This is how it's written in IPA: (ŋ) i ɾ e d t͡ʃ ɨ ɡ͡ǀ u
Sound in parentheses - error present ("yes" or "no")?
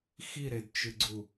yes